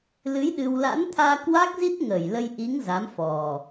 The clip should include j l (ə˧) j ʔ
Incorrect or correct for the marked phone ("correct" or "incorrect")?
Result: correct